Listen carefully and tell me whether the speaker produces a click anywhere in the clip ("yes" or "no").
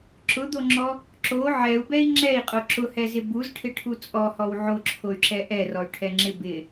yes